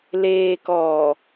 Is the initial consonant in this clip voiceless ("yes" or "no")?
no